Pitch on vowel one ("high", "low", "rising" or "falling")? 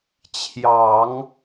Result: low